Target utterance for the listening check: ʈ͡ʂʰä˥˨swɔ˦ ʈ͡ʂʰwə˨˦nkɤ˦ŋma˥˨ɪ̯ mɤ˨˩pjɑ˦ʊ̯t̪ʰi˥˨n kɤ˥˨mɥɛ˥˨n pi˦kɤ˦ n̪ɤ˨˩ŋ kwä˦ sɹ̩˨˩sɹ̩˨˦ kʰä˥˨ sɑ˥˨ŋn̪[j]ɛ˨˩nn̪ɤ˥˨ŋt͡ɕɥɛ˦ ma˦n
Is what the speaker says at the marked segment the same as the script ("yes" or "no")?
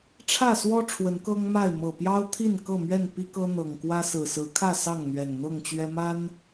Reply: no